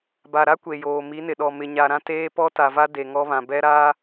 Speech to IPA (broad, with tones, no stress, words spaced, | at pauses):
ba˨ɾa˦ kʷe˨joː˨ mi˨˦nɪ˨ɗɔ˨ mɪ˨ɲa˨ɾã˦ teː˦pɔ˦ta˨va˦ de˨ŋɔ˦βã˨ bɛ˦ɾa˦